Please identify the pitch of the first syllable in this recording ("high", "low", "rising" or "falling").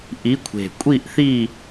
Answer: rising